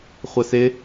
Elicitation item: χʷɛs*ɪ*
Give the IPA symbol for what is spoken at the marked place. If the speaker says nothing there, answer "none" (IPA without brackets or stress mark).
ɪ